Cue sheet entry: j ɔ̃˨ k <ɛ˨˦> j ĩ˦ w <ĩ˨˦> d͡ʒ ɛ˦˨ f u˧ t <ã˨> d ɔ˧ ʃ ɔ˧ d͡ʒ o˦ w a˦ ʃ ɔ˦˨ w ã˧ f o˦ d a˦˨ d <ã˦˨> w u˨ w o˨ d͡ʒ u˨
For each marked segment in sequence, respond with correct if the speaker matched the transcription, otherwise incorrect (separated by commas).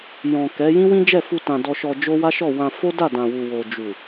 correct, incorrect, correct, incorrect